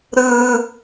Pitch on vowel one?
high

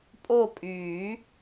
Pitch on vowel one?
falling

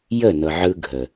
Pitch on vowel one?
falling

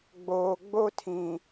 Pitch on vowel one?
low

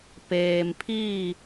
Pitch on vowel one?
low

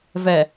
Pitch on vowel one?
low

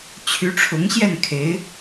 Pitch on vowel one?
rising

